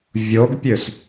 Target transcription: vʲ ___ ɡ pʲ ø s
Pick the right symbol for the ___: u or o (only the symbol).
o